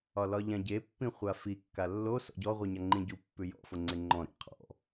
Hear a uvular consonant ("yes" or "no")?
yes